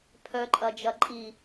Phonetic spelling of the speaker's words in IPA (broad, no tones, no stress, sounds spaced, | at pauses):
pʰ œ ǃʼ ɐ d͡ʒ ɐ ǃʼ i